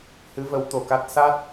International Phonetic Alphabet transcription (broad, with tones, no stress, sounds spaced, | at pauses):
h ɨ˧˥ v ə˧˥ w t̪ o˨˩ k a˦˥ t̚ s a˦˥ t̚